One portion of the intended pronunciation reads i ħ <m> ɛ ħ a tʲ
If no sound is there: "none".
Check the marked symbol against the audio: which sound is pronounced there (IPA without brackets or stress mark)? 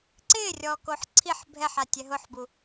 bʱ